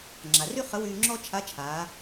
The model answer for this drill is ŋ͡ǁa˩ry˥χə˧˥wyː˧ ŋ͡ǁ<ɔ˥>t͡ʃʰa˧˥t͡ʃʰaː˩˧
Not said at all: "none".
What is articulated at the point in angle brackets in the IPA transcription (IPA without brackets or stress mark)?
ɔ˥